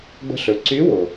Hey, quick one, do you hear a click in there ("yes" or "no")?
yes